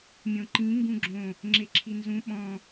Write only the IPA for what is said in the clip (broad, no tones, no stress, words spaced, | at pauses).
mʲõǃĩ ŋɡũɡ͡ǁõ | ŋ͡ǁeǁʰinzũ ɓɔ̃